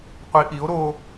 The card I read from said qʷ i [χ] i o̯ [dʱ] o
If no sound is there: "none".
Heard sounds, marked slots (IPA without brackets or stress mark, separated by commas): ʔ, ɾ